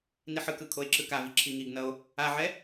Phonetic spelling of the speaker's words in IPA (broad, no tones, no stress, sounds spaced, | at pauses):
n i ħ ɯ k ɯ kʰ o e̯ ǁ ɯ k a v i ǁʰ i ŋ i ɡ n ʌ o̯ | a ʕ ɛ